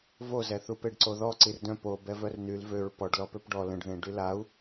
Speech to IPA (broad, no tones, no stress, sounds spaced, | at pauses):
v o z ɛ θ u p e ɖ ǀ o ð ɔ ǀ i r d œ̃ p o b ɛ v œ r n y l v ø ɹ p ɔ ɖ l ɔ p ø p ɖ ɔ l ə̃ ɖ ð ẽ ɖ y l a u̯